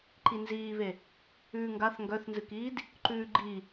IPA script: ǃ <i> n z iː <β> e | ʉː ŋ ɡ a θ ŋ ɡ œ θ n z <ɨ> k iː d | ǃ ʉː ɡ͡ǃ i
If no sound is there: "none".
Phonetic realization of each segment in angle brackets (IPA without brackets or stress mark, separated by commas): i, β, ɨ